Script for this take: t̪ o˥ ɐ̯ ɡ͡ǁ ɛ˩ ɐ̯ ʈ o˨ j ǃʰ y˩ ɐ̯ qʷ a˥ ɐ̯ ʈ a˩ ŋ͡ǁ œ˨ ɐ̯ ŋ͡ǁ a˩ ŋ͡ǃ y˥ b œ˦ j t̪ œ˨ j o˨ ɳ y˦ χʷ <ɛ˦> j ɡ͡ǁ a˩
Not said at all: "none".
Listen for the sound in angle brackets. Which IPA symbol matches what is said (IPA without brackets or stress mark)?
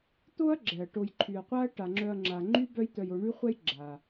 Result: ɛ˦